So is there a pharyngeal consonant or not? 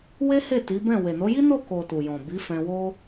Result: no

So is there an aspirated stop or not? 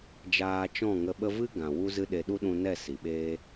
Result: no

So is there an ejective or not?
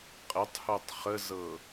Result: yes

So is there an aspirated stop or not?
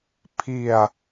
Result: yes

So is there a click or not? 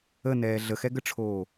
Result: no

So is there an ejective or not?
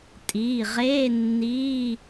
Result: yes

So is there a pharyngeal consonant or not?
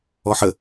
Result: yes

